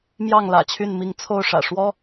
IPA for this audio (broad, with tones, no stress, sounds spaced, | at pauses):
m j ɑ˥˨ ŋ l ä̰˨˩ t͡ɕʰ y˥˨ n m i˥˨ ŋ t͡sʰ o˥˨ ʊ̯ ʂ ä̰˨˩ ʂ w ɔ˦